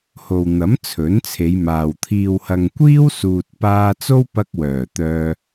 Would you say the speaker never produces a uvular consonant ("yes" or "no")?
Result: yes